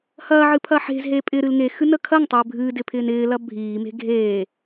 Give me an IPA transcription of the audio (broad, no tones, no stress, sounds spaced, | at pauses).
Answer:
h ɐː ʕ ɨ pʰ ɐ ħ e̤ z ɦ e pʼ ɪ ɾ ɨ l ŋ e x ɨ n ə kʰ ɐ ŋ tˤ ʏː bʱ ɨ d ɪ pʰ ɪː n ɪː l ɐ bʱ iː m e̤ ɡʱ eː